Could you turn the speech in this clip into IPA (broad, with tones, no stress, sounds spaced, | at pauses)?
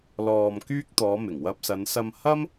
l ɔː˧ m k yː˥ k̚ t̪ ɔː˨˧ m ɪ˨˩ ŋ w ɐ˧ p̚ s ɐ˨˧ n s ɐ˧ m h ɐ˥ m